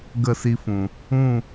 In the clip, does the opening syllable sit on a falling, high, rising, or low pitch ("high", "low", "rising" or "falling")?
falling